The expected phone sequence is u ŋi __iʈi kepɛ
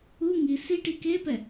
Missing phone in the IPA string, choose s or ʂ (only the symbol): s